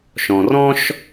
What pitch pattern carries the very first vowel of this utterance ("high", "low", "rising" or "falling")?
low